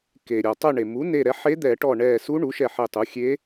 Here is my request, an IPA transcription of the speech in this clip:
ke˩ ɾʲɔ˩tˤœ˧˩ɳe˩mu˩˥ ne˧˩ɾɛ˩˥ ħe˧˥d̪ɛ˧˩˧ʈɔ˧˩ ɳɛ˧˩ su˧˥ɳu˩˥ʃɛ˧˩ ħe˧˩tˤu˩˥xʲe˧˥

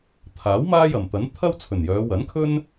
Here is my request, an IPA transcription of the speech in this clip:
t̪ʰaː˨˥w maː˥jɐ˨˩mt̪ɐ˨˥n t̪ʰɐ˥wt͡sʰɵ˨˩njœː˨˧ wɐ˨˥nkʰɵ˥n

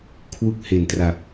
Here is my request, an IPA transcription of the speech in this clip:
kʰwu˥˩k̚ he˩˦ntra˨˩p̚

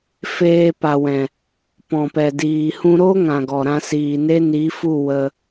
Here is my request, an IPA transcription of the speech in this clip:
feː˧pa˨wɛ̃˨ | pɔ̃˨pɛ˨diː˨ hũ˧ɾo˦ ŋã˨ɡɔ˨ɾã˧ siː˨ne˦ ni˨˦fu˦˨ wə˧

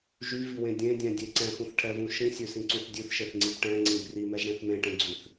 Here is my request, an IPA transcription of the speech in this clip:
ʒyviwẽ dʲẽdʲɛ̃dʲe ǀɛ̃xũθʈʰɛvũ ʃĩsʲøsĩǀũθ dʲʉθʃeθŋ͡ǀib ʈɛ̃ŋ͡ǀĩb rimɛʒɽẽθ mẽʈẽɡ͡ǀʉθ

